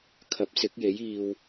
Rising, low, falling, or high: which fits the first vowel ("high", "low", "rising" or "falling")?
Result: rising